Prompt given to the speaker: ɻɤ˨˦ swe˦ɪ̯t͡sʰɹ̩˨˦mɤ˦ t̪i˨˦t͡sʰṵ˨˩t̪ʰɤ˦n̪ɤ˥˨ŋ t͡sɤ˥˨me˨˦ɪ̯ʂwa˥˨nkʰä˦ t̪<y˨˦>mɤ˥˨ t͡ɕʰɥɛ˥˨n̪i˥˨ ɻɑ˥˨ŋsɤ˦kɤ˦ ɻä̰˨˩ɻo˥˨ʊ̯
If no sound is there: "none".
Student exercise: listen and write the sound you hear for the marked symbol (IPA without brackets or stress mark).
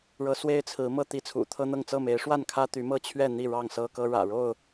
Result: y˨˦